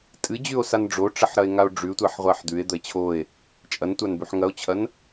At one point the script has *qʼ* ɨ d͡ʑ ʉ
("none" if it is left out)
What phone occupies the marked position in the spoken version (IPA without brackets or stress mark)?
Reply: tʼ